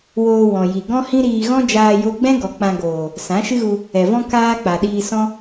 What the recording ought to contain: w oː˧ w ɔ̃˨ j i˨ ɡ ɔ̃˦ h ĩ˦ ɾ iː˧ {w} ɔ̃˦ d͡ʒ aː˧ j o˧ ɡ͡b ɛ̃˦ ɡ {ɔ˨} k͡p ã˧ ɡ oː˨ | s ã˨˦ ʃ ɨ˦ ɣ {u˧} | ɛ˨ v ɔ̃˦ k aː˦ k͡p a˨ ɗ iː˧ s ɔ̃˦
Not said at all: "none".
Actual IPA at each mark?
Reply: ɣ, ɔ˨, u˧

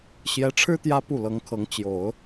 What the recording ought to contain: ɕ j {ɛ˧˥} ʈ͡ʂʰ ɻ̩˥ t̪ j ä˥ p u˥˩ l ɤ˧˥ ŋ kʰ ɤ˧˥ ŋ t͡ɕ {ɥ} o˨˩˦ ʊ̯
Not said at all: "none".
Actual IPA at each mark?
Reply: ɛ˧˥, j

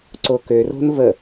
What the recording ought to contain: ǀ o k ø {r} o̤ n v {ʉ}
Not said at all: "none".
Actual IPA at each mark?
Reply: r, ə

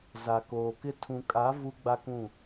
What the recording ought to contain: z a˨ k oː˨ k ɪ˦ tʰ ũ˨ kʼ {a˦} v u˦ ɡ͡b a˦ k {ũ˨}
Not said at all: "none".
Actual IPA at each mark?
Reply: a˨˦, ũ˦˨

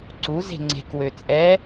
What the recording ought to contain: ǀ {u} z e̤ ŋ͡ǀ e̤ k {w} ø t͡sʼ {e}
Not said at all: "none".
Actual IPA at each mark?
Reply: u, w, ɛ

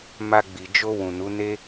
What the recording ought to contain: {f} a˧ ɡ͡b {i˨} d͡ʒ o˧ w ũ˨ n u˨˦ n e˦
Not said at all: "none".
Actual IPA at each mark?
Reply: m, i˨

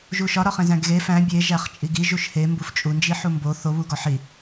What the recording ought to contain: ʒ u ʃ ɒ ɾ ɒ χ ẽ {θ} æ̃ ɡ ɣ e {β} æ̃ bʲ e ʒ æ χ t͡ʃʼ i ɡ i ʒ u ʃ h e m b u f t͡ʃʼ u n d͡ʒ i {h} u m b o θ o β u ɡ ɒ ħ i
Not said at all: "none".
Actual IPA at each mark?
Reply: z, f, ħ

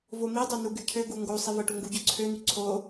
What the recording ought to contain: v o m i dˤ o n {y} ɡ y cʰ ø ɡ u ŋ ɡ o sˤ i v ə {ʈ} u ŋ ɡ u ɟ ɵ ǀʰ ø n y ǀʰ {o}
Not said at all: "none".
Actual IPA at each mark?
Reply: u, ʈ, o

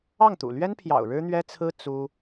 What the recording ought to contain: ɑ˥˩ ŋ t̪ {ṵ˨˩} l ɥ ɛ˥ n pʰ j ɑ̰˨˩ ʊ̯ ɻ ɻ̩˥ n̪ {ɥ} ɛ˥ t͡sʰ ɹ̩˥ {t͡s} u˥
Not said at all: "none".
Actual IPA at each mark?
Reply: ṵ˨˩, ɥ, t͡s

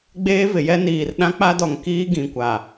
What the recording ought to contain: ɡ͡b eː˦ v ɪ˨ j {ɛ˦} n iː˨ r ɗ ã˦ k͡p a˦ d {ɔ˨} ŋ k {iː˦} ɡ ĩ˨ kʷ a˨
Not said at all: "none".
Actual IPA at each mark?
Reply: ɛ˦, ɔ˨, iː˦

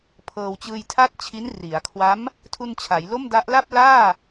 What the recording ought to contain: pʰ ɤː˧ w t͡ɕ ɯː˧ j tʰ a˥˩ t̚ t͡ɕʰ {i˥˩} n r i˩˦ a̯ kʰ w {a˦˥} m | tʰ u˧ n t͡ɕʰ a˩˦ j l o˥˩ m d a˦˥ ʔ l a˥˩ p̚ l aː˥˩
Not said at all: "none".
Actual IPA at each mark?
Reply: i˦˥, a˦˥

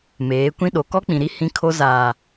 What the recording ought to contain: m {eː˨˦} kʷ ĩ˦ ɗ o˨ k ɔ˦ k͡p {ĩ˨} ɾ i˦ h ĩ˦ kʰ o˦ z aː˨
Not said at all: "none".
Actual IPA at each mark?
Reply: eː˨˦, ĩ˨

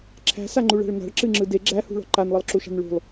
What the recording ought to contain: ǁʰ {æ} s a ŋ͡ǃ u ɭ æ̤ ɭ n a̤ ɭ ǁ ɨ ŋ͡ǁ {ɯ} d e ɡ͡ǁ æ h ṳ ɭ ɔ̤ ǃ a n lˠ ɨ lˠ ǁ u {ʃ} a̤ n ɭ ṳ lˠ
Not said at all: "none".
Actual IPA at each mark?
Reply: æ̤, ɯ, ʃ

